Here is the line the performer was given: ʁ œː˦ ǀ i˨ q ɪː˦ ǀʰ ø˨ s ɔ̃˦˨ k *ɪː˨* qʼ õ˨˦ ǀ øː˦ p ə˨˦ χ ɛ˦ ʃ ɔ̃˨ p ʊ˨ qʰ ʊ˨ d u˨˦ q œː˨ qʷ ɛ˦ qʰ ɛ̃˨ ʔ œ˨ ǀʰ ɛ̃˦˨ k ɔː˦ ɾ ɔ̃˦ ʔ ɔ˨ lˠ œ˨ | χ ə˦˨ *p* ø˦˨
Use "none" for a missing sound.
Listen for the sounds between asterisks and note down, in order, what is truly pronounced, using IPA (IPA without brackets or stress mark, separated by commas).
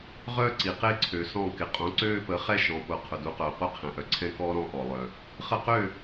ɪ˨, q